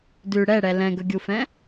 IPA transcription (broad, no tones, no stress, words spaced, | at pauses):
dʉ ɽɛɽɛ lɛ̃ɡɵɡʲufɛ̃